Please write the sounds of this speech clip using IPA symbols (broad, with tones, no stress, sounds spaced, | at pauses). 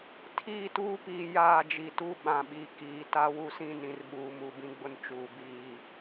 tʰ iː˦˨ t uː˦ p iː˨ j aː˦˨ d͡ʒ i˨ t u˦ ɓ ã˨ ɓ i˨ k iː˨ t a˦ w u˦ s ĩ˦ n ĩ˨ r ɓ uː˨ m u˦˨ b ĩ˦ ɡ͡b ʊ˦ n t͡ʃ uː˨ b iː˦˨